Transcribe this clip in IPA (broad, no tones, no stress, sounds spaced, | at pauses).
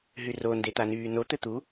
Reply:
ɦ y r o n d e t̪ a n yː n o t̪ ɘ t̪ u